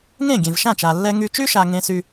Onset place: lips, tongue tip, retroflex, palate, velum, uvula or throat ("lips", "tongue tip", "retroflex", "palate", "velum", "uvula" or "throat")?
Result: velum